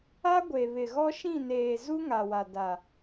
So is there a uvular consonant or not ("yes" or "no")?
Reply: no